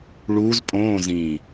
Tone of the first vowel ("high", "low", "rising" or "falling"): rising